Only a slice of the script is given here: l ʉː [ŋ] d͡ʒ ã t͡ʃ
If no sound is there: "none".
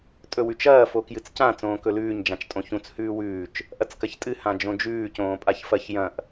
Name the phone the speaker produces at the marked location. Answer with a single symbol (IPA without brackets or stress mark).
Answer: ɲ